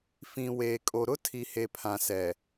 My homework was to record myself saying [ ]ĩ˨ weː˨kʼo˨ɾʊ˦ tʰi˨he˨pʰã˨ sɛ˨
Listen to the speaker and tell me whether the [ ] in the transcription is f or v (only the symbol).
f